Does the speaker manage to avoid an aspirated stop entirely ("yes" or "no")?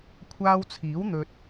no